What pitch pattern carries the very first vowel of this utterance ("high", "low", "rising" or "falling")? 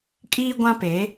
high